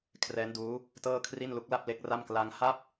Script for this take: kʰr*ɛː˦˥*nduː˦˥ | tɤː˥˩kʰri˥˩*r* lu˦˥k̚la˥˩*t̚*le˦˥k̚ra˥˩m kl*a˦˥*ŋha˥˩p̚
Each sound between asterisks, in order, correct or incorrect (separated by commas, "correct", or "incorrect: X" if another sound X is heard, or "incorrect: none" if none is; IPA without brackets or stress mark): correct, incorrect: n, incorrect: p̚, incorrect: a˧